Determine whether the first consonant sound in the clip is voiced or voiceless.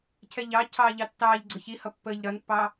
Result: voiceless